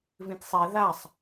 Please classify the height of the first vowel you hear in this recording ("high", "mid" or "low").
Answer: high